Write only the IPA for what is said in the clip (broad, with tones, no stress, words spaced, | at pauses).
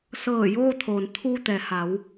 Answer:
sɤː˧˩ joː˧t̪ʰoː˩n t̪ʰuː˧t̪ɛː˩ha˩˧w